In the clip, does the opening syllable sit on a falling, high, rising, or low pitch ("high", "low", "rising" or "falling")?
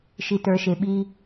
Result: low